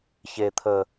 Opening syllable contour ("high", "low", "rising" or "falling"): low